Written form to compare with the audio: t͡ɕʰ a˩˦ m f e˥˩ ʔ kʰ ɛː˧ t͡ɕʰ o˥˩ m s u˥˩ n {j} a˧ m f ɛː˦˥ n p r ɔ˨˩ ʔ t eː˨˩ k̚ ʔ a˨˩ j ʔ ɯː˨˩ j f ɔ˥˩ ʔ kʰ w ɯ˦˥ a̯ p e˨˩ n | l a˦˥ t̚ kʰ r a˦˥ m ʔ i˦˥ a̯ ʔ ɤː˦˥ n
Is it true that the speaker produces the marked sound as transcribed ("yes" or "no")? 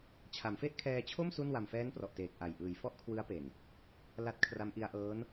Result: no